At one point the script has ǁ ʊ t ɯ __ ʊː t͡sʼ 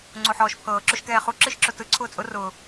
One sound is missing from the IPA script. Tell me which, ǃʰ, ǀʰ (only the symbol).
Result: ǀʰ